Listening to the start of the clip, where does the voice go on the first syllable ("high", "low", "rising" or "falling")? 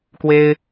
high